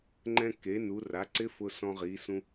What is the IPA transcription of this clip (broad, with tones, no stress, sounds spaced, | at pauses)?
ŋ͡ǃ ɛ̃˧ k e˩˥ n u˩˧ r a˩˥ ǀ ɪ˦˥ f ʊ˧ s ɔ̃˧ ʁ i˩˧ s ũ˧